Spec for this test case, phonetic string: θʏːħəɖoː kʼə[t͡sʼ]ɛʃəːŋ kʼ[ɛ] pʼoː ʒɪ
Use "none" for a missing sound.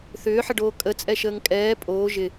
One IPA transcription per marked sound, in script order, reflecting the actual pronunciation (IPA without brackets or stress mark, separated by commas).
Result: t͡sʼ, ɛː